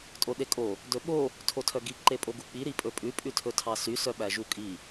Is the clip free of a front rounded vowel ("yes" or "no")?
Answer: no